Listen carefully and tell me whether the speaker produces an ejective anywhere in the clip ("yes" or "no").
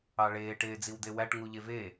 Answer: no